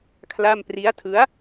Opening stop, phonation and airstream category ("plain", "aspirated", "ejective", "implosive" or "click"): aspirated